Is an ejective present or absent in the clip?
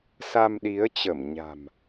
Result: absent